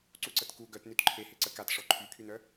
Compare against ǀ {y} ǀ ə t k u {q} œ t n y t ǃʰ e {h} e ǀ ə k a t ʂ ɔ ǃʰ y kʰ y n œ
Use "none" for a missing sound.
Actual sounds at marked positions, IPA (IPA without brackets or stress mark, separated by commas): u, ɡ, h